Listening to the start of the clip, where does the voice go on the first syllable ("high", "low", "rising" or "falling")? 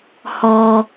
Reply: low